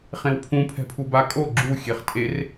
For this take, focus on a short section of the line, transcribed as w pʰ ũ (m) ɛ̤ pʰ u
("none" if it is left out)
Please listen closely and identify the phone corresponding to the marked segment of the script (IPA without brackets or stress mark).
pʰ